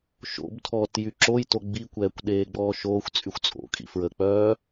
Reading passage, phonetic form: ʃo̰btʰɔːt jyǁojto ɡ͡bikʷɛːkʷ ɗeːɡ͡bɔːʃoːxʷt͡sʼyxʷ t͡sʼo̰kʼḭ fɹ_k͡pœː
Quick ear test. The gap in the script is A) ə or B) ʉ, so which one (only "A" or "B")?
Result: A